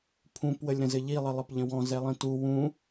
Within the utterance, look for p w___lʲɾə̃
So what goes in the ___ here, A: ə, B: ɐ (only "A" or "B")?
A